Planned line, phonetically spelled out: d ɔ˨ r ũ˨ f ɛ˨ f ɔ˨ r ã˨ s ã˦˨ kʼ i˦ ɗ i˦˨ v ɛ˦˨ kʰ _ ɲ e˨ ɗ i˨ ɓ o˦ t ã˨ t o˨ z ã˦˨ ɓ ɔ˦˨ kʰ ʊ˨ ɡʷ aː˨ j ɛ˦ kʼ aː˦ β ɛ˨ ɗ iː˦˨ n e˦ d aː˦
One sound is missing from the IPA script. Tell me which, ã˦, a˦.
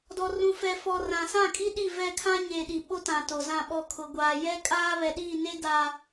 ã˦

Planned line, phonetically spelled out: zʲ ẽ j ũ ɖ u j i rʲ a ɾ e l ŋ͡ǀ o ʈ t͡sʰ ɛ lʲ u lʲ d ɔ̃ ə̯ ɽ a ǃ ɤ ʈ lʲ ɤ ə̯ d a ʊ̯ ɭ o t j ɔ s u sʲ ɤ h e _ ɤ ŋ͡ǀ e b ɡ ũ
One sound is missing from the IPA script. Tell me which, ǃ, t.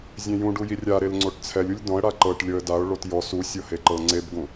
ǃ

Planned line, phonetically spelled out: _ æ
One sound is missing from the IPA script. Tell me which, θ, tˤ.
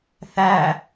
θ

